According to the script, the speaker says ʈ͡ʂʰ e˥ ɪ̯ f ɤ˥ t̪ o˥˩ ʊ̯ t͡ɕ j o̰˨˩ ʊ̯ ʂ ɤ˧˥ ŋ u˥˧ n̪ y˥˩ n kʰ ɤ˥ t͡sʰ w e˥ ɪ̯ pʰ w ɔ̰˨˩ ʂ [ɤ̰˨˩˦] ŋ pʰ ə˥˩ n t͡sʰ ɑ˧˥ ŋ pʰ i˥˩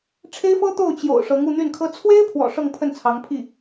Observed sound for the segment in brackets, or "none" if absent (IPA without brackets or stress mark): ɤ˥˧